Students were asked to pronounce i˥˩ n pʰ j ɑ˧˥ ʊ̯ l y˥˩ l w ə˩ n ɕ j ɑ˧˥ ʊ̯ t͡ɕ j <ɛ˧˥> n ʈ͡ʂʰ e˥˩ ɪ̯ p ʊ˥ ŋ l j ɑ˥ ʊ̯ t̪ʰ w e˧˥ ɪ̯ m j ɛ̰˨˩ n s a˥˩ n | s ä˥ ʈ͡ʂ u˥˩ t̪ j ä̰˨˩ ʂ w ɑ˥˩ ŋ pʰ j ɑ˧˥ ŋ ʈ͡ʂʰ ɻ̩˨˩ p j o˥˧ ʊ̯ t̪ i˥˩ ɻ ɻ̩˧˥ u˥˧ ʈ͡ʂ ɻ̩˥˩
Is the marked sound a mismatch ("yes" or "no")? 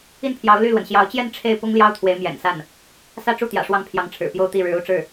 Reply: yes